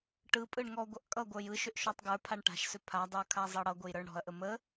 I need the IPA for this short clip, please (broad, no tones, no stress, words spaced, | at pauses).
ʈɯpʼɯɳ ŋɔɡʷʌʔ kʼʌɡʷə˞j ɯʃʏʔ ʃɔtˤɡə˞pʰaɳ ʈa̤ʃsʏ pʰadˤə˞ kʰazˤʌɽʌɡʷəj ɾə˞ɳɽɔ̤ɐ̯ʔə mə